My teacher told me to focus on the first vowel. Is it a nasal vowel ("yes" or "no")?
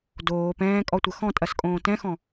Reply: no